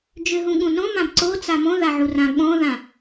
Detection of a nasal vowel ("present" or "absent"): present